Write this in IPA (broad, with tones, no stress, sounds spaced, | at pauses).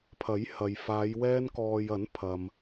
pʰ ɐ˨˥ j h ɐ˨ j f aː˨˧ j w ɛː˧ n k ɔː˨ j ɐ˨˥ n pʰ ɐ˨ m